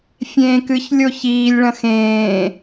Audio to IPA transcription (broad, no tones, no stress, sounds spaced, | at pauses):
fʲ ẽː k ɨ ç lʲ o ç iː lʲ ɭ ɐ̃ x ẽː